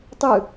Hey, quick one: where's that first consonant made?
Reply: tongue tip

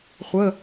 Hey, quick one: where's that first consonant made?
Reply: uvula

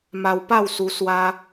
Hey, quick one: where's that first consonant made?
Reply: lips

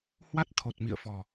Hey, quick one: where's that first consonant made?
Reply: throat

